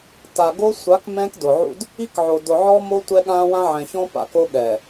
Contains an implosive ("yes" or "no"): yes